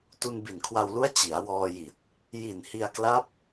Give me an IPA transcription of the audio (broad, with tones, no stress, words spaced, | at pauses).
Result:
tu˧nbi˨˩nkʰwa˧wlu˦˥a̯ t͡ɕi˩˦a̯wɔː˧ji˨˩t̚ | ji˨˩nhi˧a̯kla˦˥p̚